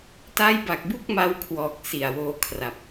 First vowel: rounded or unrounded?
unrounded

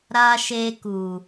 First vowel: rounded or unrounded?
unrounded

